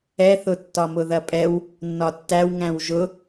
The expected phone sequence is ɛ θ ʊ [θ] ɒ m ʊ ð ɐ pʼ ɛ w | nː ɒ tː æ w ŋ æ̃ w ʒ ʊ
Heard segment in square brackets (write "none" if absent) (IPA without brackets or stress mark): tː